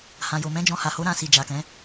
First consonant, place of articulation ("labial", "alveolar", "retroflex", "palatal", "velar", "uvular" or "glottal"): glottal